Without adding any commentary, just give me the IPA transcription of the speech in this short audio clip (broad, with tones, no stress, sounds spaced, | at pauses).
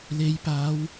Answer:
l e˨˧ j p aː˨˧ w